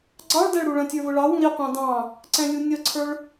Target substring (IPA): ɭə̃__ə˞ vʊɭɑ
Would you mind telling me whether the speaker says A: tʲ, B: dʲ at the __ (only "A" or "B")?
A